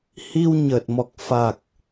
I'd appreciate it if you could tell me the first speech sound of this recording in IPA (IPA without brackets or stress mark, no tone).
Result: h